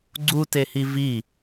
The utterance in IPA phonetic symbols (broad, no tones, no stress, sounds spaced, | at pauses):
ɡ͡ǀ u t e h i v i